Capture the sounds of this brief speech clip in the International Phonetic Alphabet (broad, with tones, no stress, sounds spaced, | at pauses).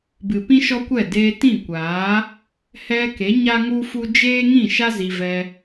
b ɨ˨ p ĩ˦ ʃ ɔ˦ kʷ ɛ˦˨ d eː˧ t ĩ˦˨ kʷ aː˨˦ | h ɛ˧ k e˨˦ ɲ a˦ ŋ u˦ f u˦ d͡ʒ eː˦ ŋ ĩ˦˨ ʃ a˦ z i˧ v ɛ˧